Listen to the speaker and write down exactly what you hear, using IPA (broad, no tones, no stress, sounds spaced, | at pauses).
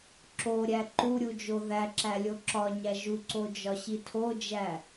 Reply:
ǁ o ɾʲ æ ǃ u ɾʲ u d͡ʒ o ð æ ǁ æ lʲ o ǁ ɒ ɲ æ ʒ u ǀ o d͡ʒ ɒ ɕ i tʰ o d͡ʒ æ